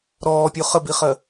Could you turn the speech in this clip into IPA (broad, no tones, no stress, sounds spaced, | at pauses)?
ɾ ɔː pʲ o χ ə b i χ ɜ